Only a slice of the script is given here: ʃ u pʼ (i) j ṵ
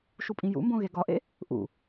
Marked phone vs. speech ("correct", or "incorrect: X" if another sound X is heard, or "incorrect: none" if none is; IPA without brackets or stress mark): incorrect: ĩ